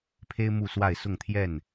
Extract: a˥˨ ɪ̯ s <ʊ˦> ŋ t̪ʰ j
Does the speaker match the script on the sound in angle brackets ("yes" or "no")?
no